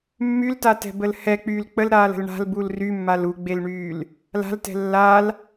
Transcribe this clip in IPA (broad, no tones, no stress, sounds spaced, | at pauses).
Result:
mː y l t a t ɛ̤ b ə l h ɛ k͡p yː l k͡p ə l ɾ aː l ə̤ l ɳ a̤ l b u l r y mː a l u ɡ͡b e l ɳ yː l | l a̤ l t ɛ̤ lː a l